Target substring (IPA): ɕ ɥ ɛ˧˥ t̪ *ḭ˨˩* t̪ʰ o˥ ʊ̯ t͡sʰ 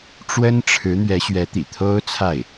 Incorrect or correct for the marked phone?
correct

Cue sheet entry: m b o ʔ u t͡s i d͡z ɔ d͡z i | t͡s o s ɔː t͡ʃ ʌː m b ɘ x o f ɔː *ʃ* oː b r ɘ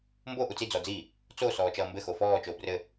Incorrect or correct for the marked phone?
incorrect: t͡ʃ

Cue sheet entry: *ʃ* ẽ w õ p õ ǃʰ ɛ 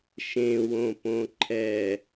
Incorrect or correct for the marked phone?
correct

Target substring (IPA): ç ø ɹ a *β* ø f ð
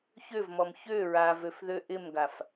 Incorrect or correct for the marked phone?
incorrect: v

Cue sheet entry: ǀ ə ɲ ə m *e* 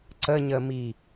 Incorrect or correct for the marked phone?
incorrect: i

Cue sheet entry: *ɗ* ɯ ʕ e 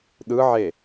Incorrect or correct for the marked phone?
correct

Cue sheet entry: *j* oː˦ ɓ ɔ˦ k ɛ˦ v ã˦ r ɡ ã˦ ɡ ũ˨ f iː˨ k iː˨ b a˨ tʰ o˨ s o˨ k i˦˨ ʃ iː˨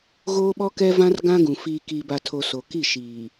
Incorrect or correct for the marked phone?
incorrect: ɣ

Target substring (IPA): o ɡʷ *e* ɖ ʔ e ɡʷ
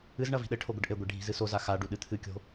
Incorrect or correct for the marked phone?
incorrect: ɘ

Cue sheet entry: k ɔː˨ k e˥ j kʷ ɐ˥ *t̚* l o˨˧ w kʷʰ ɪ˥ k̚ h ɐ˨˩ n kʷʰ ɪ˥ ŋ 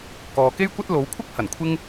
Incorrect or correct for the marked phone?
correct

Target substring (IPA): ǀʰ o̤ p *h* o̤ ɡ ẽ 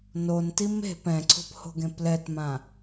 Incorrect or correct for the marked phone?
correct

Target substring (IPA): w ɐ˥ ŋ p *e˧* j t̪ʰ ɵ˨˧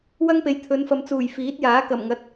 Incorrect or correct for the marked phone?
incorrect: e˨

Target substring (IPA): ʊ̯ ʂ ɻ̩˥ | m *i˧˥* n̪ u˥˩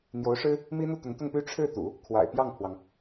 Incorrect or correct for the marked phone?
incorrect: i˥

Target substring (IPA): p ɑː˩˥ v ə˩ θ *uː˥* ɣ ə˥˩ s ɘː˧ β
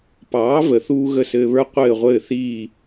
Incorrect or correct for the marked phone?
correct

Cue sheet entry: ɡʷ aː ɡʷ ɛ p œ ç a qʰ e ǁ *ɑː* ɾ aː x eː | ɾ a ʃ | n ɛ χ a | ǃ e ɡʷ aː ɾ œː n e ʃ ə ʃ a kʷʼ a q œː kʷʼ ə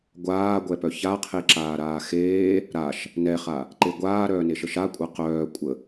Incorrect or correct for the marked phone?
incorrect: aː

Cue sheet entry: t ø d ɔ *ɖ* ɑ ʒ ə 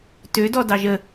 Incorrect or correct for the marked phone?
incorrect: d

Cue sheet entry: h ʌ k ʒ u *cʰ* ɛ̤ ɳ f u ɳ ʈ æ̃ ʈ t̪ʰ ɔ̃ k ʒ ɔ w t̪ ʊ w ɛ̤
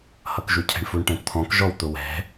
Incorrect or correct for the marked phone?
correct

